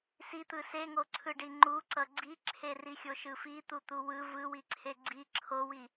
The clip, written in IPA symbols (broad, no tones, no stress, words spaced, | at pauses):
sit̪ɯ seŋoǀʰɯɖi ŋ͡ǃuǀʌ ɡ͡ǀiǁʰerixʲo ʃɯfit̪ut̪u wɯ vɯwiǀʰe ɡ͡ǀi ǁʰowi